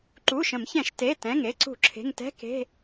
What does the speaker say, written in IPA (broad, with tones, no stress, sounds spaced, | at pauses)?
ǃ uː˩˧˩ ʃ ə̃˧˩˧ m ç ɛ̃˧˩˧ ʃ t e˩˧˩ t ɛ̃˩˧˩ ŋ e˩˧˩ ǀ ṳ˧˩˧ ǁʰ e̤˩˧˩ ŋ t ɛ̤˧˥˧ k e̤˧˥˧